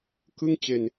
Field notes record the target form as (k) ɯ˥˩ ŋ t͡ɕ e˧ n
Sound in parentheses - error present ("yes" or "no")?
no